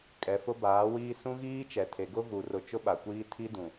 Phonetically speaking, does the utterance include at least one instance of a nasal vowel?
yes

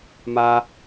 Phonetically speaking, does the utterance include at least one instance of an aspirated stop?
no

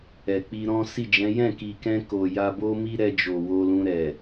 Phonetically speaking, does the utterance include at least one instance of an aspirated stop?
no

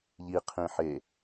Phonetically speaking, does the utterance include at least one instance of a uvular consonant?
yes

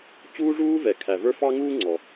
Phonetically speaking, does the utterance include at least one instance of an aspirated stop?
yes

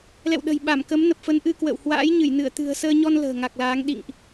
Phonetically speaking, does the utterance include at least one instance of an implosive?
yes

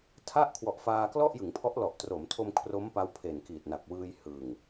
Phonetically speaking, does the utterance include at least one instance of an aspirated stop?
yes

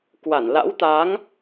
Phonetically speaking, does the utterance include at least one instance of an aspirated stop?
no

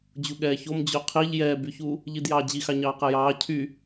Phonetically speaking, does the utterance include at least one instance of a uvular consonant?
yes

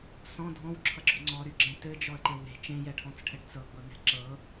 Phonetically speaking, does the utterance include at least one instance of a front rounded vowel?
yes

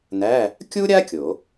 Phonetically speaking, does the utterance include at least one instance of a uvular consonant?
no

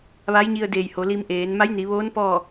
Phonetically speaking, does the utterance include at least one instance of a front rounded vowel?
no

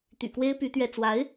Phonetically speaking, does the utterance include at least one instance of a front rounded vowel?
yes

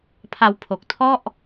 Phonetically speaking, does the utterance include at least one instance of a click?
no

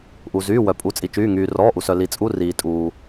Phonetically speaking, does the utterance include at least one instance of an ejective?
yes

